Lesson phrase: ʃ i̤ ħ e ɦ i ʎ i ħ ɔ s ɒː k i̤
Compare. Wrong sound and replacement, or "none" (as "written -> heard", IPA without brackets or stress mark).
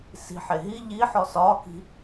ʃ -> s